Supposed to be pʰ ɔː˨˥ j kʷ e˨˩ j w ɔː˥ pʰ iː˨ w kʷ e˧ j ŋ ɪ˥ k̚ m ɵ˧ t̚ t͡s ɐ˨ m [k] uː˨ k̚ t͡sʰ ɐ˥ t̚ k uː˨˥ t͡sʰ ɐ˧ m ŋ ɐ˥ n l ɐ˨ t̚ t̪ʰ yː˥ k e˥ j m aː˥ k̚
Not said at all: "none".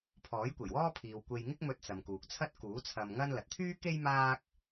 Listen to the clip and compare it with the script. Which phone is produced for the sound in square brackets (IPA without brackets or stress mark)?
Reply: k